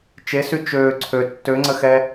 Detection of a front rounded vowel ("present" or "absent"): present